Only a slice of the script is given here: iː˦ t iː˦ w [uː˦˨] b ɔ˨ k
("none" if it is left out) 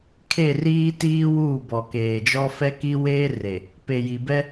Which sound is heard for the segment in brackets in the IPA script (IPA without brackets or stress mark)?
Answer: uː˦˨